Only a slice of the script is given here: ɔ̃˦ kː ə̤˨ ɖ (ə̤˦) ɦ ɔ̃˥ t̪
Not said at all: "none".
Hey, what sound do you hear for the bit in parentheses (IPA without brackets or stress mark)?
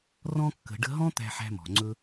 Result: ə̤˦